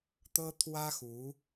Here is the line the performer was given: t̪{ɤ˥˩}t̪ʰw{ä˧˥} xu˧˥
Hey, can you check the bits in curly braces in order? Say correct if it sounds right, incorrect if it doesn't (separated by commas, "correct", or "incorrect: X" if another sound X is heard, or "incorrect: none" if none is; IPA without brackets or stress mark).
incorrect: ɤ˥, incorrect: ä˥